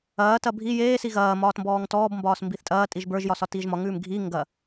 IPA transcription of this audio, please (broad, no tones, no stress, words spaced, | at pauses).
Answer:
ɐːtɐ bʱi jeːsi ɣɐː mɒːtmbɔːŋtɔːbmbɒːs mbiθtʼɐːtʼiʒ bə˞ʒjɒ sɒtiːʒmɒŋʉːm ɡʱi ŋɡɐ